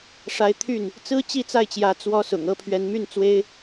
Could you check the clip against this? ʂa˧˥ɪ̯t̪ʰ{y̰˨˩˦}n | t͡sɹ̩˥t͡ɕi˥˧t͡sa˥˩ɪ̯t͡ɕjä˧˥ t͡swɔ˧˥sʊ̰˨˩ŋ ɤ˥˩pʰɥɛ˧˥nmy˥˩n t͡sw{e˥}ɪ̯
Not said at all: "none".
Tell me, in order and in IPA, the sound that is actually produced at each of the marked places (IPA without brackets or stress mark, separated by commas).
y˥˩, e˥